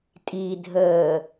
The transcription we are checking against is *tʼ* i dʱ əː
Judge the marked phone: correct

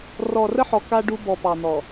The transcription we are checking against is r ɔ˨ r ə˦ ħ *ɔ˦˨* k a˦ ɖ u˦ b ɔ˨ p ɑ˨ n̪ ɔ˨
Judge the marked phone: incorrect: ɔ˨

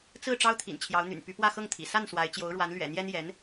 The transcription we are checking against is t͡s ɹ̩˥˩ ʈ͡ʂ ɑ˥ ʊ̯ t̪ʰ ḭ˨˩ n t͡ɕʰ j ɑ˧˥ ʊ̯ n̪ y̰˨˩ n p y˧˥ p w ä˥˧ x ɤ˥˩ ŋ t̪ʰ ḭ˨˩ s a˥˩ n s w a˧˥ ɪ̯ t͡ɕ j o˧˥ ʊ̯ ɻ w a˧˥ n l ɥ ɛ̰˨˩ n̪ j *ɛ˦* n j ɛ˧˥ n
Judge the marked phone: incorrect: ɛ˥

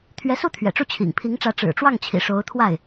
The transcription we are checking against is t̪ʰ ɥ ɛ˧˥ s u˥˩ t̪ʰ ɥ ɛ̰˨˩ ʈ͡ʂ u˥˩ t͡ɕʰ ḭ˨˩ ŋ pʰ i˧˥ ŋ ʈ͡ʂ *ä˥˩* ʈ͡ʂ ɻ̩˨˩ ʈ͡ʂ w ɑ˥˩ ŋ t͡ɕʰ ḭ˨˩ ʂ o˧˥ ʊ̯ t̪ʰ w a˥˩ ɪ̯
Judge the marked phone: incorrect: ä˧˥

